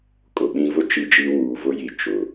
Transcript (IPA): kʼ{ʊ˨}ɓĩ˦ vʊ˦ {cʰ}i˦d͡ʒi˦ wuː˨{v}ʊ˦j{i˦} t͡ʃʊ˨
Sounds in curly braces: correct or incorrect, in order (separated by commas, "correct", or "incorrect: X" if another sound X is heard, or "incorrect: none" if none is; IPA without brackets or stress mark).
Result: correct, incorrect: t͡ʃ, correct, incorrect: i˨